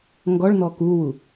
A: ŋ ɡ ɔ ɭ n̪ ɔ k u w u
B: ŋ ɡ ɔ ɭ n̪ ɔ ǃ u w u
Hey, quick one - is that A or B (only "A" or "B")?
A